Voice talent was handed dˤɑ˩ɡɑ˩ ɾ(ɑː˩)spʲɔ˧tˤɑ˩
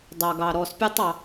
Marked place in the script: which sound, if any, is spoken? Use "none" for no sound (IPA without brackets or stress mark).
ɔː˩